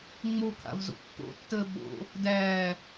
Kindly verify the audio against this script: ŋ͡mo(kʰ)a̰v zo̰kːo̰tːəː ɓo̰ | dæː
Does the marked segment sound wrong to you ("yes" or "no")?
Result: no